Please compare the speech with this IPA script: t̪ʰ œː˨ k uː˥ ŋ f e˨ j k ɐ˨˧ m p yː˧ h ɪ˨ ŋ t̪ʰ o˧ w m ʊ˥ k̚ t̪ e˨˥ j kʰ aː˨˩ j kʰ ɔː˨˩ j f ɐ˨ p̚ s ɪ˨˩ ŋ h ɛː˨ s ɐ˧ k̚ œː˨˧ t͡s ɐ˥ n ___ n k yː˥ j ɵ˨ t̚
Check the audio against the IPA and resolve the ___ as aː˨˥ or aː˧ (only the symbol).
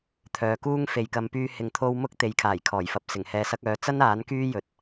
aː˨˥